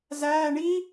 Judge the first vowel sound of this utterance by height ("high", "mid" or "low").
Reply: low